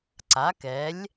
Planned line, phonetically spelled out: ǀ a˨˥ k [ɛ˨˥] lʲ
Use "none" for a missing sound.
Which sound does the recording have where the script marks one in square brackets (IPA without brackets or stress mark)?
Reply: ɛ˨˥